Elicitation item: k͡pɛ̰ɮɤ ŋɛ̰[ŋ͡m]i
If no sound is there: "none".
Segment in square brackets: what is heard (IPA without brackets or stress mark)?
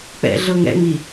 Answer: ŋ͡m